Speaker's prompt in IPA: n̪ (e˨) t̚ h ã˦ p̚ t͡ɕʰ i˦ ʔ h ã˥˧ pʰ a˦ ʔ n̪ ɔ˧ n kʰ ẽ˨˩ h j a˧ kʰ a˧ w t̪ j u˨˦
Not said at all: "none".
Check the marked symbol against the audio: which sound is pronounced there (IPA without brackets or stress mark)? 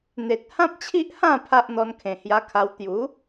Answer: e˨